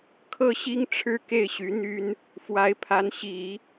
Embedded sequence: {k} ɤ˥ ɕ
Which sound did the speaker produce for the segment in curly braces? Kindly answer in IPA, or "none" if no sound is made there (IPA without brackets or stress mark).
kʰ